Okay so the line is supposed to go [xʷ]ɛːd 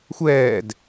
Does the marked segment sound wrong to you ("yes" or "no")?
no